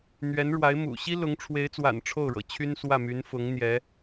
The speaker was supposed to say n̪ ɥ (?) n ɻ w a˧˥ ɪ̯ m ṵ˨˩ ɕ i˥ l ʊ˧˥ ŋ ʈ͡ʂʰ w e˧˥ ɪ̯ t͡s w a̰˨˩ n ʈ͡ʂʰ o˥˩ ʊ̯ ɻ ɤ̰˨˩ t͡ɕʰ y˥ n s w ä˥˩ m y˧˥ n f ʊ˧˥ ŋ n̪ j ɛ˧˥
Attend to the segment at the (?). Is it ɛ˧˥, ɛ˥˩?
ɛ˧˥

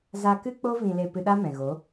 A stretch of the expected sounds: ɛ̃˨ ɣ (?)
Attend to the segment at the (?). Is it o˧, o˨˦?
o˨˦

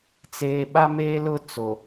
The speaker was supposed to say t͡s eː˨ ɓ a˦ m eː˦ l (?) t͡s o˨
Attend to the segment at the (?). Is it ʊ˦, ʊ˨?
ʊ˦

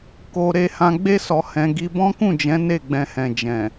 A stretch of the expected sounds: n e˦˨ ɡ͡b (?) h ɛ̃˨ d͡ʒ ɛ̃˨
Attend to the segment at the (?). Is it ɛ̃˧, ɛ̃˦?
ɛ̃˧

